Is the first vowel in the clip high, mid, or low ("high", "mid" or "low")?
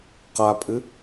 low